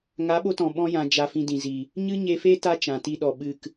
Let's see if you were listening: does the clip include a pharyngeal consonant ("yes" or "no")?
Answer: no